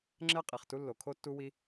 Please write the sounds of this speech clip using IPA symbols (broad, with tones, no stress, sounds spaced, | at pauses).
ŋ͡ǁ ɛ˥ qʼ i˩ χ t u˥ lː o˩ kʰ o˥ tː u˥ w i˥